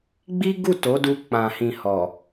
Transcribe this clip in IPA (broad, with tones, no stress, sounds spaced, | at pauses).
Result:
ɡ͡b i˦ ɡ u˦˨ t o˨˦ d u˧ k͡p ã˨ h ĩ˨ h ɔ˨